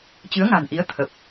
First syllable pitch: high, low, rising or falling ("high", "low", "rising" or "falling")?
rising